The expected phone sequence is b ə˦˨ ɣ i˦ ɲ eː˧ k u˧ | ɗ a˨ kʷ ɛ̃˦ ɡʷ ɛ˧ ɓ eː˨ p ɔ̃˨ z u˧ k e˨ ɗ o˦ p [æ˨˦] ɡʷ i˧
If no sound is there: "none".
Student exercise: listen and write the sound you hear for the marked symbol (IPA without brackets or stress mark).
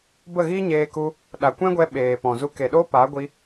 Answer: a˨˦